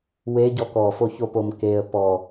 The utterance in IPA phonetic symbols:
weɟɔ kɔfoçopom keə̯ pɔ

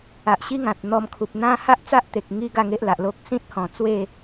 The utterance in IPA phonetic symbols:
a˨ʔɕi˦ŋã˨t̚ n̪ɔ˧mkʰu˨p̚n̪ã˦ ha˦ʔt͡sa˦ʔt̪e˨k̚ ŋi˦ɡa˥˧ŋe˦ʔla˨ʔ lo˦k̚ sĩ˦t̚hɔ̃˨˩ t͡swe˥˧

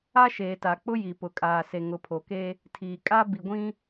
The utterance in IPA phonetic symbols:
a˦ʃeː˨ta˨k͡pʊ˦ ji˨pʊ˨kʼaː˨ se˨ŋʊ˨pʰo˨ke˦ | tʰiː˨kʼa˦ bi˨ɡʷĩ˦

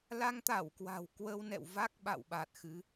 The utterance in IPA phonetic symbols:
la˧ŋt̪a˧˩w kwa̤˨˩wkwə˧wnɛ̰˧˨w va˦˥k̚ɓa̰˧˨w ɓa˨˩t̚xɨ˨˦

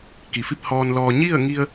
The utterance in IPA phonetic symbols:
ki˩fi˥˨p̚hɔː˧nlɔː˧ ɲi˥˨ə̯ŋi˧ə̯

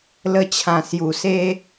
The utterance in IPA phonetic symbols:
lə˧t͡ɕʰã˨˩ sju˨˩ se˦

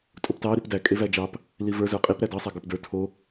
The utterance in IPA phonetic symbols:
tʼoptɑ ɾipdæ kʼevæd͡ʒɑp | livə˞ zə˞qʼip ɾædɑ sˤæɡə˞pdə˞ tʰo

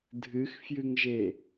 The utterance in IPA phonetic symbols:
dʱɨxfjɨŋʒe

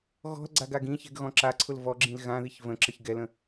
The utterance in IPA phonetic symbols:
ɣɔ̤lɡ͡ǀaɡ aɡĩçɛ̤ɡ ɣɔ̃ǁaǀʰʊl vɔ ɡ͡ǁĩlɣãðiç və̃ ǁəçɡɛlə̃

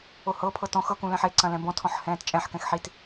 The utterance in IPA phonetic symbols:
ohɤpʰɤt ɔ̃x ɤkũ lɛ̃ħeǀɐ̃ lɛ̃bɔ̃tʰɔ̃ħ hɛ̃ːtt͡ʃʼɛ̃ħkɛ̃x ħit

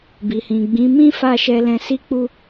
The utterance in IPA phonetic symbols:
bi˨hĩ˨ɡ͡bĩ˨˦mĩ˦ fa˦˨ʃɛ˧lɛ̃˧ si˦k͡pu˦

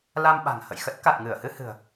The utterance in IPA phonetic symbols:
la˧mɓa̤˨˩ŋ hə̰˧˨jxə˦˥t̚ ka˨˩t̚ŋɨ˧˩ə̯hɨ˧ hɨ̤˨˩ə̯

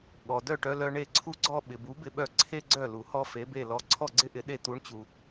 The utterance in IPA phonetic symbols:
ɠɔ˩ dœ˥˩ʈœ˧lœ˧ ɳe˥˩ǀʰu˥ɡ͡ǀɔ˥ ɓɪ˩bu˩˥bɪ˧ɓœ˧ ǀʰe˥ɡ͡ǀœ˥˩ lu˩hɔ˥ fe˩˥be˥˩ lɔ˧ ǀʰɔ˥˩ɡ͡ǀɪ˥ʔɪ˩˥ ɗe˧t̪u˩˥ɳt͡ɕu˩

